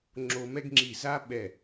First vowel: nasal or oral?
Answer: oral